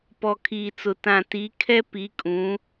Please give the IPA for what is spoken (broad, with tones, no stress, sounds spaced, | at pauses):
p ɔ˨ kʰ iː˨ t͡s ʊ˨ t ã˨ t i˨˦ kʰ ɛ˦ p i˨˦ kʼ ũ˨˦